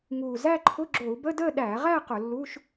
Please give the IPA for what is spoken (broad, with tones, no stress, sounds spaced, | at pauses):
ŋ uː˨˩ z æ˥˧ ǃʰ ʊ˧˥˧ ɡ͡ǁ o˧˩˧ u̯ b ə˧˥˧ d əː˥˧ ɗ æː˧˩˧ ʁ æ˥˧ q ʊ˧˩˧ lː uː˧˥˧ ʃ